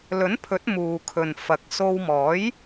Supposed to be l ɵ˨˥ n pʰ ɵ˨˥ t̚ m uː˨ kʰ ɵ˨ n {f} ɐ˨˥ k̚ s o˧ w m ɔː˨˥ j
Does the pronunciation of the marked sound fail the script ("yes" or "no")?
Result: no